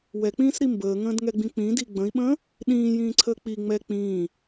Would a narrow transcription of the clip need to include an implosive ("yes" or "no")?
yes